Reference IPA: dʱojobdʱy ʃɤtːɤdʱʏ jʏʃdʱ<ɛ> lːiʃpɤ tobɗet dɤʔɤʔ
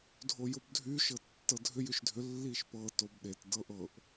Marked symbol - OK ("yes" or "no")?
no